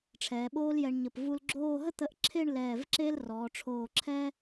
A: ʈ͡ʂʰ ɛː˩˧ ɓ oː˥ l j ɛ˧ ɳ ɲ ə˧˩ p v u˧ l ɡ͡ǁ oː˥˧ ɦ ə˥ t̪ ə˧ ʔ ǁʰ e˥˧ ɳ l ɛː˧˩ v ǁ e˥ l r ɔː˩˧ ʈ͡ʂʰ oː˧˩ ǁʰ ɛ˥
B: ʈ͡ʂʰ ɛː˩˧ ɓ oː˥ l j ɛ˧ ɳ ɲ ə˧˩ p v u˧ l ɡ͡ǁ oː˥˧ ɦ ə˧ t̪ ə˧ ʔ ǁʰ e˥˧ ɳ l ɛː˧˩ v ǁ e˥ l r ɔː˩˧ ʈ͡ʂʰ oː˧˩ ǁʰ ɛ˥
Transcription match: A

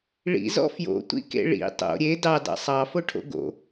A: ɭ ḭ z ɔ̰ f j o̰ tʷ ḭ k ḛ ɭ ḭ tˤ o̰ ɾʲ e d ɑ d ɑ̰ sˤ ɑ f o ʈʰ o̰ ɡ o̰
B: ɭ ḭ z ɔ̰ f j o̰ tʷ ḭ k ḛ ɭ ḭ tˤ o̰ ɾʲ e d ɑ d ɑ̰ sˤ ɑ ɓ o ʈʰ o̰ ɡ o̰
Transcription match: A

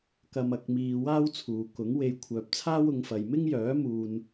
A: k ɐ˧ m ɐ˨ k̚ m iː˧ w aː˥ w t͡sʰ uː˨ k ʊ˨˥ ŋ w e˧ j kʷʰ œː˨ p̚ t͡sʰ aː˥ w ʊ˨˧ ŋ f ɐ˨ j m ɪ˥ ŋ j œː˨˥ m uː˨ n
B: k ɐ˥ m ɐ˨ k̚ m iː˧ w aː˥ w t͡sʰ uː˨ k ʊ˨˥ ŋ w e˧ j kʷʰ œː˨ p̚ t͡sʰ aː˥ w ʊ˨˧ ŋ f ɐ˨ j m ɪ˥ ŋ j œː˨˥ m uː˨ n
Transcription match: A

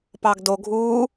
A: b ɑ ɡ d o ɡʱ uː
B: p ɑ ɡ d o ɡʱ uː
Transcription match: B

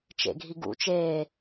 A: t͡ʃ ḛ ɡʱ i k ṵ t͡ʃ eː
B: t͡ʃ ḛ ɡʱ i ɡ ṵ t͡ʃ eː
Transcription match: B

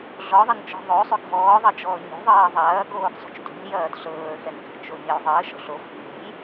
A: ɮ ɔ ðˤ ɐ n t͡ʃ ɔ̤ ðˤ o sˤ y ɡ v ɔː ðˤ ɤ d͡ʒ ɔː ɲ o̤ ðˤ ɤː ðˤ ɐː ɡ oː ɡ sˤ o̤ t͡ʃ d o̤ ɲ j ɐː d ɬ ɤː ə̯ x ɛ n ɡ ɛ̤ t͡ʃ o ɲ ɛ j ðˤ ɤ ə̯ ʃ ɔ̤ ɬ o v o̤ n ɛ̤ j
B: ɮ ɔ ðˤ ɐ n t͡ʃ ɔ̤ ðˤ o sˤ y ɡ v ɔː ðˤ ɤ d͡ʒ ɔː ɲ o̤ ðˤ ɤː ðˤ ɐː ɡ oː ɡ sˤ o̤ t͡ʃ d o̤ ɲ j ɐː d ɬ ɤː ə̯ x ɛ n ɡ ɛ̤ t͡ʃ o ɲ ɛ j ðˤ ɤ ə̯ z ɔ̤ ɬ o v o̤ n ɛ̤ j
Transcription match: A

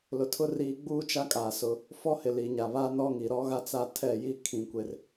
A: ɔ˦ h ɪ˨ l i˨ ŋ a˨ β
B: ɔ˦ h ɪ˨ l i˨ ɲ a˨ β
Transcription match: B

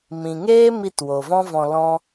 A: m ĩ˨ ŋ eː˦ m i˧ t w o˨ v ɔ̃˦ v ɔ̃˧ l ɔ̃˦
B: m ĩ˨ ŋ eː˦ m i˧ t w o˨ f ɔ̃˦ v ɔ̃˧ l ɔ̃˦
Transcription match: A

